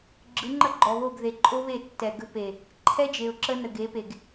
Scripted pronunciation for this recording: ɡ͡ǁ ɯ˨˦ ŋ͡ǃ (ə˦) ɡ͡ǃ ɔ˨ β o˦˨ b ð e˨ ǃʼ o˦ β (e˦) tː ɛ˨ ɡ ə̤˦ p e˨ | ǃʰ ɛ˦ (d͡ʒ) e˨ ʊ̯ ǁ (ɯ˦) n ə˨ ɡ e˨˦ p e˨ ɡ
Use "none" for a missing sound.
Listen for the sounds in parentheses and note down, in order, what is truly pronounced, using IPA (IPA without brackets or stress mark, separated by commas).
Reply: ə˦, e˦˨, d͡ʒ, ə˦